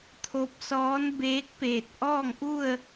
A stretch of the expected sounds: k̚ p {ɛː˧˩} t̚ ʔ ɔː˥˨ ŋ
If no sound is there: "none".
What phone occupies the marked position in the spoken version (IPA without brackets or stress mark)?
eː˧˩